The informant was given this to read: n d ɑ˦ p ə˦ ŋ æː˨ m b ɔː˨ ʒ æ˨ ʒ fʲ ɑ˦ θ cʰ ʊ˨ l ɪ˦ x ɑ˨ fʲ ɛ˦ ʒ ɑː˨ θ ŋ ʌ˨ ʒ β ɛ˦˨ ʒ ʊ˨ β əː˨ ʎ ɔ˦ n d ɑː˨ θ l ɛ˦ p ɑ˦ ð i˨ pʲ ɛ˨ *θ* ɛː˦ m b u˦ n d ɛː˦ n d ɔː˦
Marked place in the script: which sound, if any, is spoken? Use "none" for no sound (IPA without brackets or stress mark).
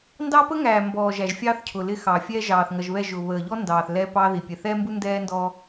θ